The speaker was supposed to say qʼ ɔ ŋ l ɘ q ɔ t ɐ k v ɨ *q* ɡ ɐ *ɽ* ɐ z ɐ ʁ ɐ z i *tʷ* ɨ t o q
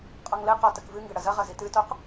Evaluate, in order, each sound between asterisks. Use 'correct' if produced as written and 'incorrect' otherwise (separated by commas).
incorrect, correct, incorrect